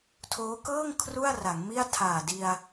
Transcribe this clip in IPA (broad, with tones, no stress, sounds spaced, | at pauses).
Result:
tʰ oː˦˥ k ɤː˥˩ ŋ kʰ r u˥˩ a̯ r a˩˦ ŋ m i˥˩ a̯ tʰ aː˨˩ d i˧ a̯